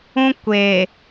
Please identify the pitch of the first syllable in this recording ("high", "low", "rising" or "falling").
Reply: high